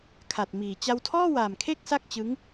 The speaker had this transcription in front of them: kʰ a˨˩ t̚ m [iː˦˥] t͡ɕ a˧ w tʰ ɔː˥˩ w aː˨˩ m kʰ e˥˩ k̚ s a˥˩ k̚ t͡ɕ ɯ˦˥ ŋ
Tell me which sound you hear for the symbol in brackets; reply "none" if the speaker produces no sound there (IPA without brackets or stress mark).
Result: iː˨˩